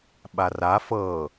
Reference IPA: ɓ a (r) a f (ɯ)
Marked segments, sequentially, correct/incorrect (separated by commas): correct, incorrect